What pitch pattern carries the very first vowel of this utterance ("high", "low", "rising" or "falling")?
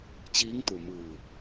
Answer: rising